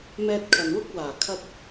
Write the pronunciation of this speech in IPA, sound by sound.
m ɛː˧ t̚ kʰ ɐ˨ n w ʊ˥ k̚ w aː˨˩ kʰ ɐ˧ t̚

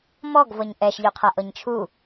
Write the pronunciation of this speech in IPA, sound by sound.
m ɔ ɡ v ɤ ɲ ʔ ɛ ʃ ʎ o qʰ a ʔ ɤ ɲ t͡ʃʰ u

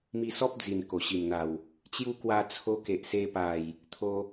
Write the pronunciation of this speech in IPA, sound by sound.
m i˧ s ɔ˦ p̚ d͡z i˨˩ n k o˨˩ ɕ i˨˩ m n̪ a˨˩ w | t͡ɕ j u˦ k w a˧ t͡sʰ o˧ k e˨ ʔ s e˧ p a˨˩ j | t̪ʰ o˧

